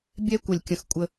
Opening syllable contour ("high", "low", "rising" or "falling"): high